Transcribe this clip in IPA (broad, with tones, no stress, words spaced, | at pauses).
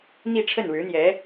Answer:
n̪i˥˧ ʈ͡ʂʰə˥˩nɻɻ̩˧˥n̪jɛ˧˥